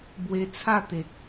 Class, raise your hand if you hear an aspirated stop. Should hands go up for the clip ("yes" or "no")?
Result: yes